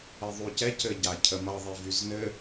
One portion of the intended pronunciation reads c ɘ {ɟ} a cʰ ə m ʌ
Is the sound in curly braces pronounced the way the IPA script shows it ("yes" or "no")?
yes